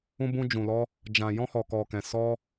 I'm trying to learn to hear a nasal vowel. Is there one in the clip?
yes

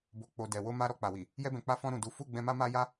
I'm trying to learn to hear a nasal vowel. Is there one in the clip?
yes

